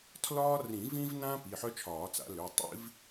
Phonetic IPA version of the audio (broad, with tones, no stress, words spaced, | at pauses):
tʰlɒː˦rĩ˨˩˦vĩ˦vnã˦ pi˩˧˩ħœ˦t͡ʃʰɒː˨˩˦t͡sa̰˨˩˦ lø˩˧˩tˤḭ˦v